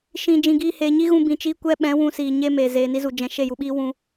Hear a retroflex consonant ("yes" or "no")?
no